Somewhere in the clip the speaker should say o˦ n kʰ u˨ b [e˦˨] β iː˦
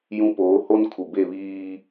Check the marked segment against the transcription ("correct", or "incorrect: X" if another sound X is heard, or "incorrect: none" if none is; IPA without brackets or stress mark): correct